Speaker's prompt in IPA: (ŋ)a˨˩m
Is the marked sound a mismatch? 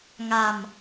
no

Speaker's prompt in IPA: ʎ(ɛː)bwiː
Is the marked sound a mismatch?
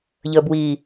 yes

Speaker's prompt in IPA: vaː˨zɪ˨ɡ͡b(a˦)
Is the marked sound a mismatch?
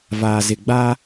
no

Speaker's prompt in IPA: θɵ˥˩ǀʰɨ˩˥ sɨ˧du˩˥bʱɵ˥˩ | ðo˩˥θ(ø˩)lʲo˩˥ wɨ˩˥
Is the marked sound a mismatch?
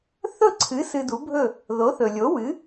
yes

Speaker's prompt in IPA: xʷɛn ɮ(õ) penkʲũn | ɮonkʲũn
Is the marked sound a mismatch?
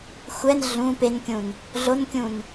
yes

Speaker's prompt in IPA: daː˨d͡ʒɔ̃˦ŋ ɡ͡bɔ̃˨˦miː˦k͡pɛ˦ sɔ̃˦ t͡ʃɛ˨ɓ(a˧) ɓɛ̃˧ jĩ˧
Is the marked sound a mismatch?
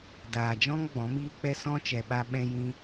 no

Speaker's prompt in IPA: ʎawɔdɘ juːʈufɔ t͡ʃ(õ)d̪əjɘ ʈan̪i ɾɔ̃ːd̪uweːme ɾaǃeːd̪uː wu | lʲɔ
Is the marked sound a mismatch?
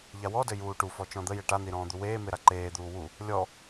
yes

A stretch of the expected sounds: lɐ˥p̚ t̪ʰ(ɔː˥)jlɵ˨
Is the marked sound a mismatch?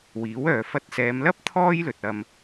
no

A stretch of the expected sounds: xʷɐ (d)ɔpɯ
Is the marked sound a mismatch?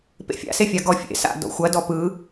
no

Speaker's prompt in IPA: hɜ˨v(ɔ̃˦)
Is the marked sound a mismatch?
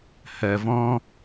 no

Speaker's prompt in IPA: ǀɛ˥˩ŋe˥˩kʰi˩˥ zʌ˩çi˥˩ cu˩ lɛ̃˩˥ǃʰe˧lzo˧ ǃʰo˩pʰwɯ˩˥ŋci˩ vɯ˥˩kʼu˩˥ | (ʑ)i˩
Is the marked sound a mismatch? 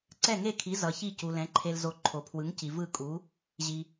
no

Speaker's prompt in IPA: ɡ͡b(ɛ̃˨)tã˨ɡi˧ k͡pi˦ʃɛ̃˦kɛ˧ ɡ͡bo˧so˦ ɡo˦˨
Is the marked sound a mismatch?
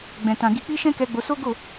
no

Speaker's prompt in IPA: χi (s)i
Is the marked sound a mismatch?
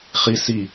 no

